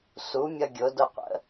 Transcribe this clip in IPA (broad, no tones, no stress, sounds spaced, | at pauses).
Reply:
s u mʲ ʌ ɡʲ ʊ d ʊ qʷ ə̰